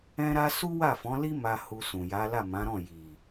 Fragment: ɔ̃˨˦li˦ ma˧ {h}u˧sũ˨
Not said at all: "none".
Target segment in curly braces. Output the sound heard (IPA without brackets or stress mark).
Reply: h